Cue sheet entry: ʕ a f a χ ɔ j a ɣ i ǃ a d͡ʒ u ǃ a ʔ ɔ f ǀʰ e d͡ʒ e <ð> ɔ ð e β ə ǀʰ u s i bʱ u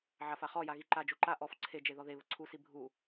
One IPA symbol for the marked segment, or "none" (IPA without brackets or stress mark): ð